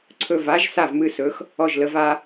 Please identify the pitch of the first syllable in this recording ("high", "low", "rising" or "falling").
falling